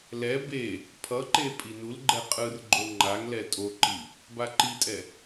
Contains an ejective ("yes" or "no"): yes